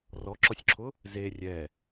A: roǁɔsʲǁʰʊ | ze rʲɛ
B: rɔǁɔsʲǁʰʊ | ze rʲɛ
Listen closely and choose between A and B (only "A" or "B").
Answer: B